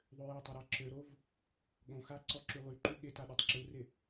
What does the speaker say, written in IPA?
ðˤøjatˤɪ ɾaǁøɾov | ɠõxa ǀɔǁylˠyǃy ɠɪta ɗøtˤǁurɪ

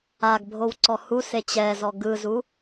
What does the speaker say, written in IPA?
aɡbʱow ǀɔhuse t͡ɕɛzɔ ɡɯzu

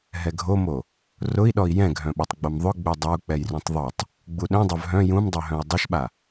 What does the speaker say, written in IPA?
ɦɛɡʱomo | rʊi̯ɗɔi̯ jɛ̃ɡʱœ̃ɓœtˤ ɡ͡bomðˤʊ ɡ͡bødˤɐu̯ k͡pɛjrũtˤðˤotˤ | ɡ͡buɗœ̃dˤœv ɦœ̃ jũmdˤøɦœ̃i̯ dˤʊʃɓa

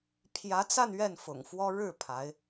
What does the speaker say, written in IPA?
pʰjä˧˥t͡sa˥˧n ɥɛ˥˩nfʊ̰˨˩ŋfwɔ˥ ɻɻ̩˥˩ pʰa˧˥ɪ̯

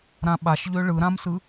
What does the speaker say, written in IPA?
ɾãɓaʃʎø ɭɯɾãmsɯ

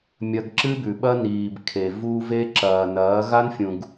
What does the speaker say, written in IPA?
mʲɐ˧ɡ ǁɨ˦bʉ˨ɓɐ˦ niː˨bkʰe˨ vu˧ve˧ ǁɐː˨nɐː˨˦ ɣa˦nfʲũ˨ɡ

